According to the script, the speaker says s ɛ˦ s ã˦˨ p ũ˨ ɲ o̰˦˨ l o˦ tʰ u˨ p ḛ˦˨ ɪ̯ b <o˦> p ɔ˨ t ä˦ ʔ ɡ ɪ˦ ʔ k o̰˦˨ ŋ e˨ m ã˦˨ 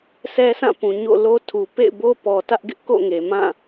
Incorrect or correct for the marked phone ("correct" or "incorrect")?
correct